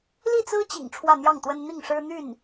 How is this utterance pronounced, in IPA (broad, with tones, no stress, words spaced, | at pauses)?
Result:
li˥˩t͡sɹ̩˥t͡ɕḭ˨˩ŋ ʈ͡ʂʰwä˥˧n̪jɑ˥˩ŋt̪wə˥n n̪i˥˩ŋʂɻ̩˥ n̪y˥˩n